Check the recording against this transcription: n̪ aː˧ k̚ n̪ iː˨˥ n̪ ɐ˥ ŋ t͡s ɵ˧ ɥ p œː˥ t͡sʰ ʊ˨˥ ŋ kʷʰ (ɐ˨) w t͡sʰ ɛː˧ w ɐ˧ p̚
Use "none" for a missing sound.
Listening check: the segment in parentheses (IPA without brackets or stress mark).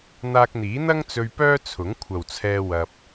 ɐ˨